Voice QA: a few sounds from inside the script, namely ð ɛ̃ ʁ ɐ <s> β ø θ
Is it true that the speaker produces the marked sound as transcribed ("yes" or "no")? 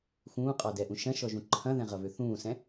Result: no